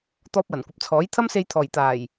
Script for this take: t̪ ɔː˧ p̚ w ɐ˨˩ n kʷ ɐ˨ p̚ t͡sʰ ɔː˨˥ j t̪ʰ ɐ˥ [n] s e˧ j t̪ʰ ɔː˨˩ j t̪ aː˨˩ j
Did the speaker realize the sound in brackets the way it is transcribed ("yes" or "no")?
no